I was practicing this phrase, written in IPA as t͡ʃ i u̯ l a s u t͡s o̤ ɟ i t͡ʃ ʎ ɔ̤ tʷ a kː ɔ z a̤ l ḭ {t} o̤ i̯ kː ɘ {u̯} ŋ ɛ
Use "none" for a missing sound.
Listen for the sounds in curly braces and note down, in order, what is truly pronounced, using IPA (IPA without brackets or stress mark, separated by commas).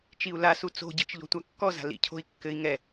cʰ, i̯